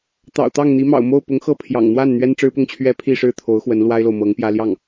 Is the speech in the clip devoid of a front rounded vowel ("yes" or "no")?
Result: yes